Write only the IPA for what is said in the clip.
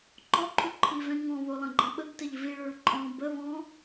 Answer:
ǃ ɔ ǃʰ u ǃʰ i v ɛ̃ ŋ ɔ̃ β o lˠ ə̃ ɡ͡ǃ ə̃ ɓ ə ɡ t ə ʎ v i ɭ ø ɭ ǃʼ ɔ̃ b ə β ɔ̃

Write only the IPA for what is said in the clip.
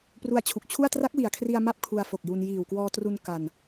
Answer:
p r u˧ a̯ t͡ɕʰ u˨˩ k̚ t͡ɕʰ u˥˩ a̯ t r a˦˥ k̚ w i˨˩ a̯ kʰ r i˧ a̯ m a˥˩ p̚ kʰ u˧ a̯ f o˨˩ k̚ j u˧ n j iː˨˩ w k w ɔː˧ t r u˧ n k a˧ n

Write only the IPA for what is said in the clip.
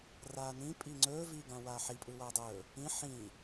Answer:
r aː n ĩ pʼ i ŋ͡ǀ ɵː v iː ɡ ã w aː ħ i pʼ ɯ w aː dˤ ɵː | ĩ ħ ĩ

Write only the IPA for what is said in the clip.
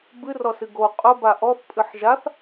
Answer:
b ɨ r ɔ s ɨ ɡ o qʼ ʊ b a ʔ ɔ θ pʼ ɨ ħ ʒ a θ

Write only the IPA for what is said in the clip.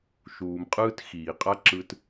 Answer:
ʃ uː˩ m qʼ ɯː˥ t x iː˩ qʼ a˥ ǁ ɯ˧ t

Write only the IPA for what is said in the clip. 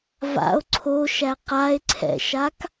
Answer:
v a̰ o̯ ǀʰ o ʃ æ q a e̯ ǀʰ ɛ̰ ʃ a k

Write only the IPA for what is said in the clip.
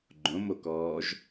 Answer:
ɡ͡ǃ õ m o k ɔː ʒ

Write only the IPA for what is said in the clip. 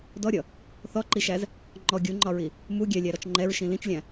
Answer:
d ɔ ɾʲ ʌ | θ ɔ ǃ i ʃ æ z | ŋ͡ǃ ɔ ɡʲ u ŋ͡ǃ ɒ ɹ i | m u ɡʲ ɛ lʲ æ ɾ ɔ t͡ʃ ŋ͡ǃ ɛ ɹ ʃ ĩ l ĩ t͡ʃ lʲ æ̃

